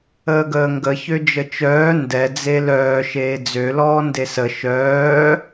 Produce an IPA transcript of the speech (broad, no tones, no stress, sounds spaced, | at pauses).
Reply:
əː ɡ əː ŋ ɡ ə ç ø d͡ʒ ə t͡ʃ œː n d ɛ d͡z e l œː ʃ eː d͡z ø l ɔː n d e s ə ʃ œː